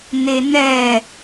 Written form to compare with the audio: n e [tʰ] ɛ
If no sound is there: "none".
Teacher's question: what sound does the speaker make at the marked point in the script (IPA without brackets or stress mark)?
n